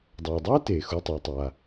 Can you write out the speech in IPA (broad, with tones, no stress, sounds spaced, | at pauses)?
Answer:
dˤ aː˩ dˤ aː˥ t eː˩ x u˩˧˩ tˤ ɛː˩ tˤ a˩